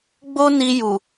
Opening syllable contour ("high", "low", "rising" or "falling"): high